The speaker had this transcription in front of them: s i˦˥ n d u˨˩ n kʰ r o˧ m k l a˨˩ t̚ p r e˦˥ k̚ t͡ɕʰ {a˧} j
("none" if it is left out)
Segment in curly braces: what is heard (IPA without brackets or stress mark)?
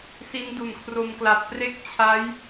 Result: a˦˥